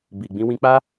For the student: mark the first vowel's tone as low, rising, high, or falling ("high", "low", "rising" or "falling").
low